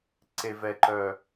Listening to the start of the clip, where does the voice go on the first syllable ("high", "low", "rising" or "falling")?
low